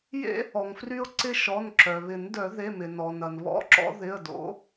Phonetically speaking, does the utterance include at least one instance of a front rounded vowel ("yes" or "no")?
yes